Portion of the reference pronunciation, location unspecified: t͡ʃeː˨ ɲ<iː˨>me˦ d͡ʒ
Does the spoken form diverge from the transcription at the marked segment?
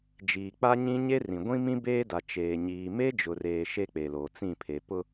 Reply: no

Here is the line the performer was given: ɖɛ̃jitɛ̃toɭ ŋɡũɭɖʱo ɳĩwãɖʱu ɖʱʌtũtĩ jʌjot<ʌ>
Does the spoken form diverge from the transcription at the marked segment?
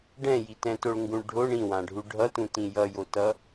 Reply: no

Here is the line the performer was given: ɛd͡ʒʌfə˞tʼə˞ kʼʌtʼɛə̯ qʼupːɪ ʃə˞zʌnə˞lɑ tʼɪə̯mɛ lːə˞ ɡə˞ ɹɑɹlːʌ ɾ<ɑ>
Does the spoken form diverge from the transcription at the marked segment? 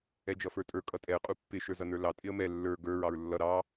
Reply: no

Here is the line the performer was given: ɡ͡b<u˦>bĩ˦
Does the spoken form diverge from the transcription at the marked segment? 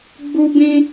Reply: no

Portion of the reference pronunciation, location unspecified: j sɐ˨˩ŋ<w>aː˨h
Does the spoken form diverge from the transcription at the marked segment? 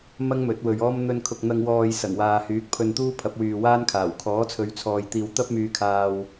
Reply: no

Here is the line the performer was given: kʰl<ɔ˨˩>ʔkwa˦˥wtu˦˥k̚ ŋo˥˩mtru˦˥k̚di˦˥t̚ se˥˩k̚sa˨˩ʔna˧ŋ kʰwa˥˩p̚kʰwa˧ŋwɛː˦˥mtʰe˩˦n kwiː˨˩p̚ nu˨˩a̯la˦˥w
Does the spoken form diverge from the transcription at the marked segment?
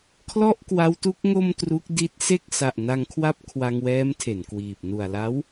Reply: yes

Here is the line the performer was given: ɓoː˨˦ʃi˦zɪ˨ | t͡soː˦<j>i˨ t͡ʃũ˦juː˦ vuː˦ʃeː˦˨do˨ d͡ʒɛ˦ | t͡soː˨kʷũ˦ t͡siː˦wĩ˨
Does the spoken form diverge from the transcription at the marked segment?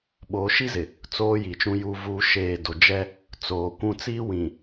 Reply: no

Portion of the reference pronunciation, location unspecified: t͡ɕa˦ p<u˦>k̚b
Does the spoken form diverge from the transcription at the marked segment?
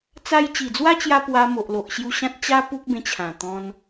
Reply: no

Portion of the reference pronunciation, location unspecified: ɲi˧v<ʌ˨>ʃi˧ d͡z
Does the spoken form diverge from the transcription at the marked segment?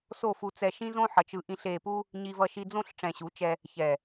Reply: yes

